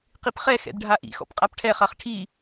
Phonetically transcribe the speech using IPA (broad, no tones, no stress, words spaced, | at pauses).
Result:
qipχɛ xɛ̰dɖʱaʔḭxɔ̰p qʼapʈʰɛχaχ ʈʰi